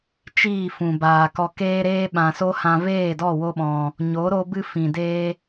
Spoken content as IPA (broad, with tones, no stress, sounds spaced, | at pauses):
t͡ʃ iː˦˨ f ũ˨ b aː˨ k ɔ˧ k eː˧ ɾ eː˧ ɓ ã˨ s o˦ h ã˧ v eː˦˨ d ɔ˦˨ w o˦ ɓ ɔ̃˧ | ɲ o˨˦ ɾ o˧ b ɨ˧ f ĩ˨ d eː˦